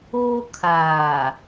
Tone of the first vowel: high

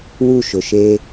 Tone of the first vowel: falling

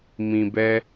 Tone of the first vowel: low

